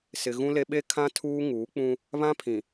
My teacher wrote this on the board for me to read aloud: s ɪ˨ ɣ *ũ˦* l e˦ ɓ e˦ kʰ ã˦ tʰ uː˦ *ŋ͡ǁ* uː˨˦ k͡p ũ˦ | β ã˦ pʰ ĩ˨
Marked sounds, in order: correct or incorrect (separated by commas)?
correct, incorrect